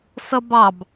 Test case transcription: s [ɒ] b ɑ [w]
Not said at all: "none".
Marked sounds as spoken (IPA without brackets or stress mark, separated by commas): ʌ, b